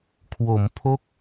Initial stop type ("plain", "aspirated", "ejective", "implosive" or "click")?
aspirated